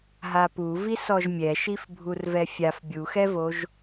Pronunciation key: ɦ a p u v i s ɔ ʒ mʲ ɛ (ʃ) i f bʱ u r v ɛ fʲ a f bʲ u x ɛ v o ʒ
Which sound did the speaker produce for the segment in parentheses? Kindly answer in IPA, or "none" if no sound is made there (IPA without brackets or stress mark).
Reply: ʃ